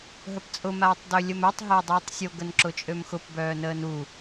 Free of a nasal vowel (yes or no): yes